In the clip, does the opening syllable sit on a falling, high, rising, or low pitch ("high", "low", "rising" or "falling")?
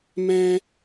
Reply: high